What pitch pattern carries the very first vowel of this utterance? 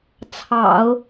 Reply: low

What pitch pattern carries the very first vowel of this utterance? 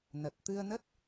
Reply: low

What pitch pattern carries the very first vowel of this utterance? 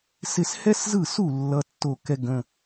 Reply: falling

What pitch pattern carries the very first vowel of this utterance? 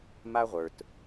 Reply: high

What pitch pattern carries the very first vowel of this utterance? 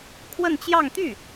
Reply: falling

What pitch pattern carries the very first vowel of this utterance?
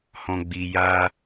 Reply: low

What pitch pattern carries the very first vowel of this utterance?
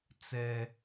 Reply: high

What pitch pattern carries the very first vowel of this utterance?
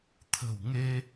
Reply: low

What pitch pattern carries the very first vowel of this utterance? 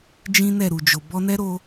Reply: high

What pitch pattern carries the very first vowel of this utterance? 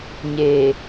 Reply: low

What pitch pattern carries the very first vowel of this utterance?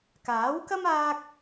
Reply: rising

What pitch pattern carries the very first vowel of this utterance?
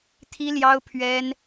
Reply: high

